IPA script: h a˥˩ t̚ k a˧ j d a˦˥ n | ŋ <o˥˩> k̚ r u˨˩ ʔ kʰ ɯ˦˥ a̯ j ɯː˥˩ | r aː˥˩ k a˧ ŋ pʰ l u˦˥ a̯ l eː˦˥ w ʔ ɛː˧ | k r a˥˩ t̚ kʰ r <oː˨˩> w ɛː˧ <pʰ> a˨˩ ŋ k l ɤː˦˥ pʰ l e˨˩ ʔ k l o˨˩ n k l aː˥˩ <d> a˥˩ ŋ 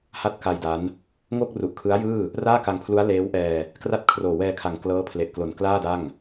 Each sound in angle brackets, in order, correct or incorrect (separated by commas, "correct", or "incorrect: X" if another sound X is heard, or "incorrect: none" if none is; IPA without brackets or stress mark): correct, correct, incorrect: kʰ, correct